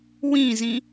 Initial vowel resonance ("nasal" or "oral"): nasal